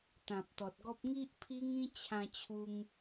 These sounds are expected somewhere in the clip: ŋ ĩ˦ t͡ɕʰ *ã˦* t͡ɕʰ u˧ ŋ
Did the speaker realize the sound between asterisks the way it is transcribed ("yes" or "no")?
no